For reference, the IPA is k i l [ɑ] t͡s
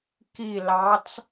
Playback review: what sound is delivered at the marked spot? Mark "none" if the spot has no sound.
ɑ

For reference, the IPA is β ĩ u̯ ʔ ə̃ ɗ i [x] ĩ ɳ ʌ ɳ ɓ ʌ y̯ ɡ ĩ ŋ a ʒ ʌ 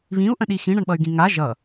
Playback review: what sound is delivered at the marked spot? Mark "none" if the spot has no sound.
x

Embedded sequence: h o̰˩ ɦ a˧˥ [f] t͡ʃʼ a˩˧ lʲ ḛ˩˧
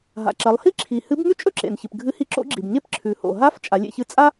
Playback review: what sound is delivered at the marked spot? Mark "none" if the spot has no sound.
f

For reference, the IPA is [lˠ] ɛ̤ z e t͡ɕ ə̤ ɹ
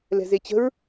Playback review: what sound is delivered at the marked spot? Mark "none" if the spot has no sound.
l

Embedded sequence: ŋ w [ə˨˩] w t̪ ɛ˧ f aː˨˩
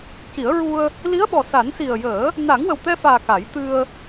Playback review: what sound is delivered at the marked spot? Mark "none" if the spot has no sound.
ə˨˩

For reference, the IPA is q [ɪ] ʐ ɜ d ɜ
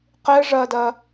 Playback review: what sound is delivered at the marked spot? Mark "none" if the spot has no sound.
ɪ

